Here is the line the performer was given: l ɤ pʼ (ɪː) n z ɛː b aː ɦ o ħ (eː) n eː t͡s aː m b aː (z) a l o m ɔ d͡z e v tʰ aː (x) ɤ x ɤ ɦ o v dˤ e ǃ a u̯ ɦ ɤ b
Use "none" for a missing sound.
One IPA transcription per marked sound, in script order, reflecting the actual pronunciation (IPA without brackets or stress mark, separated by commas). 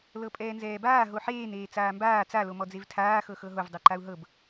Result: ɛː, eː, t͡s, x